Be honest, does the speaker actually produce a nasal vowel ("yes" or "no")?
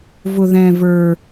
yes